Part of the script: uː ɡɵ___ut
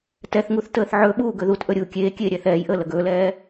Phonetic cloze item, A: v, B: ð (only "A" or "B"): B